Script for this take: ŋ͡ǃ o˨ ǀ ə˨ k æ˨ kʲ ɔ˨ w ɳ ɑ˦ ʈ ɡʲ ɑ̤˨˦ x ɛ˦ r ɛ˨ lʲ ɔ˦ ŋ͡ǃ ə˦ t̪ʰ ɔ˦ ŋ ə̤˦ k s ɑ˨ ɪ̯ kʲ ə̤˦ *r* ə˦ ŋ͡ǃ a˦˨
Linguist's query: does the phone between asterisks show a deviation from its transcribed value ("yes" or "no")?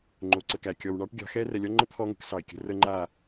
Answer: no